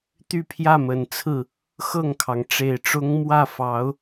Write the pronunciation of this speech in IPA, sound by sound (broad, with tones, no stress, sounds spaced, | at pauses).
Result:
t̪ y˥˧ pʰ j ä˥˩ m ə˨˩ n t͡sʰ ɹ̩˥˩ | x ɤ˥˩ ŋ kʰ ɑ˩ ŋ ʈ͡ʂ e˨˩ ɪ̯ ʈ͡ʂ ʊ˥ ŋ m w ä˥˩ f ɑ˧˥ ʊ̯